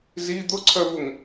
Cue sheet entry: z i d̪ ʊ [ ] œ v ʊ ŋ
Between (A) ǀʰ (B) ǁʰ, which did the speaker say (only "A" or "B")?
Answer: A